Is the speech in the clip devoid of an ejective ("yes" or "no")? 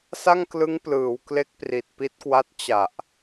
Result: yes